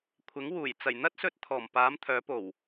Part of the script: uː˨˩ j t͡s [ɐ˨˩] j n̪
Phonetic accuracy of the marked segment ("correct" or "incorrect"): correct